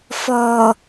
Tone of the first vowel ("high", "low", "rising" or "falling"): low